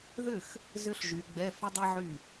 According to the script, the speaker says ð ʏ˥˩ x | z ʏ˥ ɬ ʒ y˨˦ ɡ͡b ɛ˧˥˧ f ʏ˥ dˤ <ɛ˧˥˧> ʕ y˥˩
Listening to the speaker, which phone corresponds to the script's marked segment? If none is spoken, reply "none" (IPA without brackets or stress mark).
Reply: ɛ˥